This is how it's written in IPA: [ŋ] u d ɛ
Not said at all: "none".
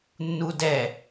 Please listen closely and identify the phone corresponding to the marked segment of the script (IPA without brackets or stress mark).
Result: nː